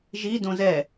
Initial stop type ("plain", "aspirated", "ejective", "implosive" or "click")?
plain